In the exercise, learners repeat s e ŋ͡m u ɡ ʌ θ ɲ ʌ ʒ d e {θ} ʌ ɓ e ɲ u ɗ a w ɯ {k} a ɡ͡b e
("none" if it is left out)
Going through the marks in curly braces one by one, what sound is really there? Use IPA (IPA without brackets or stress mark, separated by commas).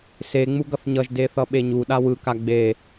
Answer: θ, k